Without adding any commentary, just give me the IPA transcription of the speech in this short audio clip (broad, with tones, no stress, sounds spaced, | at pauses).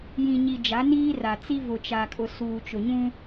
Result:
j ĩ˨ ɲ i˨ d͡ʒ a˨˦ n iː˦ r a˨ t͡s i˦ v ʊ˨ t͡ʃ a˨ kʼ ʊ˨ s uː˨ t͡ʃ ʊ˨ ɲ ũ˦